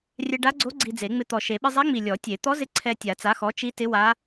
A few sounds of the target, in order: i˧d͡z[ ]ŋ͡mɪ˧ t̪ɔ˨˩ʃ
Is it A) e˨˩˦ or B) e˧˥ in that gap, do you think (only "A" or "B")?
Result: A